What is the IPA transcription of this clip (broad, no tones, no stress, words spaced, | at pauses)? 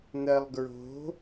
n̪ɜlˠɡɹo̤